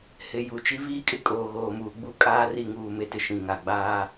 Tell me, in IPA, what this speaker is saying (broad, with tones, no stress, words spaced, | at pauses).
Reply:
hɪ˨ ju˨t͡ʃi˦ viː˦kʼɪ˦ kʼoː˨ɣoː˨muː˨ ɡ͡bu˦ kʼaː˦ri˦˨ŋuː˦˨ me˦tɪ˨ ʃĩ˨ŋa˨ɡ͡baː˦